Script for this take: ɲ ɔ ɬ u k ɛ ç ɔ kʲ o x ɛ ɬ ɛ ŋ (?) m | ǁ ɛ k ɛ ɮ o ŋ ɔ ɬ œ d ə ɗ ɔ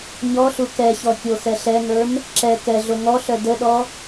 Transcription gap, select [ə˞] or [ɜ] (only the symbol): ə˞